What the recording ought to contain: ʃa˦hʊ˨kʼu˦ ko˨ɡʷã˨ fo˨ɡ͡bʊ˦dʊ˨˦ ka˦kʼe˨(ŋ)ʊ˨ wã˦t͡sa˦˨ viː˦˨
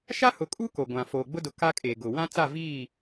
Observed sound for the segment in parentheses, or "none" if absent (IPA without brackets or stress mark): ɡ